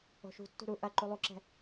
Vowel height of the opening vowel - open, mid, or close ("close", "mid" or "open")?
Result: mid